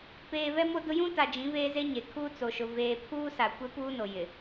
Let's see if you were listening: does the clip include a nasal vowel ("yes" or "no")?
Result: yes